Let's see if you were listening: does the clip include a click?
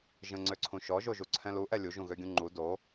yes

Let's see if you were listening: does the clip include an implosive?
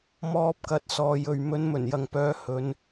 no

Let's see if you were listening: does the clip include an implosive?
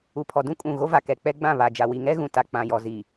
no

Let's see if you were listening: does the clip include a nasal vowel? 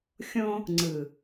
yes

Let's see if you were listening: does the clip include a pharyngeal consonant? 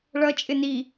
no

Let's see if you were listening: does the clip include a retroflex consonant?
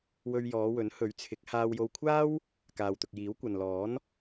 no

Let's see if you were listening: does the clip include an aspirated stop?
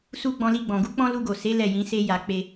no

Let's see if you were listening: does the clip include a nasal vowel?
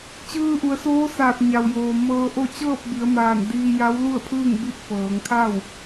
no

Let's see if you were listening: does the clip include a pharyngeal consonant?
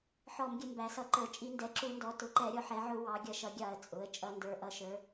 yes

